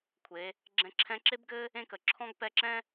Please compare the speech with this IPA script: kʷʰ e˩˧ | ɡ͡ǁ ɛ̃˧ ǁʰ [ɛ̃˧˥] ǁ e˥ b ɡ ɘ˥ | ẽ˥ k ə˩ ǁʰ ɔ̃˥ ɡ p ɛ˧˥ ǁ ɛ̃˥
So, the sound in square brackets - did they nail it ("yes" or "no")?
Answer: yes